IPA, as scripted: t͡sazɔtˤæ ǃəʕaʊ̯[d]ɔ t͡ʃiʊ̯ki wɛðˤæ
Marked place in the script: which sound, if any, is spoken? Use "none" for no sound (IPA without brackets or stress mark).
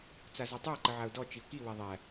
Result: d